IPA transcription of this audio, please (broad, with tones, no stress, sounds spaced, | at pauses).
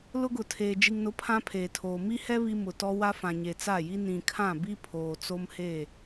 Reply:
l ʊ˦ ɡ ʊ˨ tʰ eː˨ d͡ʒ i˨ ŋ n ʊ˨˦ pʰ ã˦ pʰ eː˨ tʰ oː˨ m i˦ h ɛ˦ β i˦ m ʊ˨ t ɔ˦ w a˦ f ã˨ ɲ e˨ t͡s a˦˨ j i˦ n ĩ˨ kʰ ã˦˨ b i˦ pʰ oː˨ t͡s o˦ m h e˦˨